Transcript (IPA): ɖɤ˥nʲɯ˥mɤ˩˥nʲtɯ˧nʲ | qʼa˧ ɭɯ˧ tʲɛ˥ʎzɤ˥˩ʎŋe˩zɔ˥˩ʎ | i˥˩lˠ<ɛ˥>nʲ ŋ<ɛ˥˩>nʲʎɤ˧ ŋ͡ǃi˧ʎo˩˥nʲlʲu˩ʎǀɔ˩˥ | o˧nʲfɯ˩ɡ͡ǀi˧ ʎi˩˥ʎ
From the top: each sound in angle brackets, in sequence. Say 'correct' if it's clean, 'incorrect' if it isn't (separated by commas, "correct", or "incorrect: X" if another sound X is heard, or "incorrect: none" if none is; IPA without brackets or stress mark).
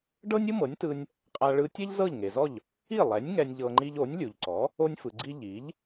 incorrect: ɛ˩˥, incorrect: ɛ˧